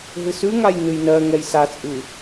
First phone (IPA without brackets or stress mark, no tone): ɦ